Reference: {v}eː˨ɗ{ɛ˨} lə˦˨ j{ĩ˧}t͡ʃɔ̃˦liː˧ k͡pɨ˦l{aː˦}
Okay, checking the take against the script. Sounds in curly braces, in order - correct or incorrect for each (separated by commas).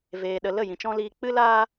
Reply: correct, incorrect, incorrect, correct